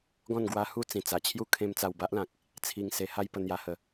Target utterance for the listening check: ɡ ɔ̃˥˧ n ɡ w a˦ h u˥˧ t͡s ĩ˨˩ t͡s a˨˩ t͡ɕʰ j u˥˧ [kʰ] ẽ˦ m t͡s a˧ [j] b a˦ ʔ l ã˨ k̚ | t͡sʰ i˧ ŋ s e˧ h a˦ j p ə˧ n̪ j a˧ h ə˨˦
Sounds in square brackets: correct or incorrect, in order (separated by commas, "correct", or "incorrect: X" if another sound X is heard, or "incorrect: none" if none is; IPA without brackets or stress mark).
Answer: correct, incorrect: w